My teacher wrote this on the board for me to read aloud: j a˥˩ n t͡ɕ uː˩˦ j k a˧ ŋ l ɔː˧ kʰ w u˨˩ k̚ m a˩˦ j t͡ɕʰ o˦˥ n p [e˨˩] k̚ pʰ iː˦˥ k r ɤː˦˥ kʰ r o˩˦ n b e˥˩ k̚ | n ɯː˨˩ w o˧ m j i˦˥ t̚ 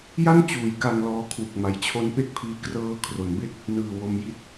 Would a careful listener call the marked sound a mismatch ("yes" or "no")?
yes